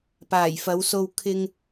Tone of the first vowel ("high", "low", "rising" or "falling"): low